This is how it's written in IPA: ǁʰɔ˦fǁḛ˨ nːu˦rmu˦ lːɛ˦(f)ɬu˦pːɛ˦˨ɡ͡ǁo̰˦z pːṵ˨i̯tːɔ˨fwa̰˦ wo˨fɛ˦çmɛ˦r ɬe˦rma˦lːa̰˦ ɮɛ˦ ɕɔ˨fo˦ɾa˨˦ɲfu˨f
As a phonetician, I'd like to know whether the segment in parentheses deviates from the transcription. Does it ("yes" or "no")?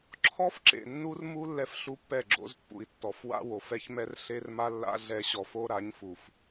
no